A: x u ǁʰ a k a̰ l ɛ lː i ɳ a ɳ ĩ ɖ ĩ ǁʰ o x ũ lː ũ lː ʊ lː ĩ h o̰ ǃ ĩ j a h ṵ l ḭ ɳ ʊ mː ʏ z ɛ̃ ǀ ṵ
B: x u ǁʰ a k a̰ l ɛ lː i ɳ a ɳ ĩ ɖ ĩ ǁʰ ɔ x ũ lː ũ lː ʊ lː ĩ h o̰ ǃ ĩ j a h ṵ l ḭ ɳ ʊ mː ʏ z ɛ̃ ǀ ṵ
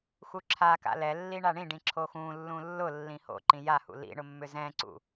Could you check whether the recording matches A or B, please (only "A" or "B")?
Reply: A